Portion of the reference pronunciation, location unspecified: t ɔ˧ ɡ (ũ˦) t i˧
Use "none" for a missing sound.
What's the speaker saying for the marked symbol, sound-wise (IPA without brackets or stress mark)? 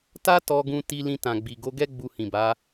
ũ˧